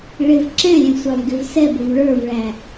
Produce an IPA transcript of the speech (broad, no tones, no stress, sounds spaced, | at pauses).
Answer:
ɭ ɪ v ǁ ɛ̃ lʲ ɛ̃ sʷ ɑ v ɡ ɪ v s ɛ b ʊ v ɭ ə˞ v ɭ æ